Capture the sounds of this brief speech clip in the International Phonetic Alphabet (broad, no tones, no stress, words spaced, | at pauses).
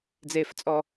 d͡zeft͡sʼɔ